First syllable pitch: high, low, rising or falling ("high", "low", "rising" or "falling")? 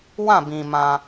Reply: falling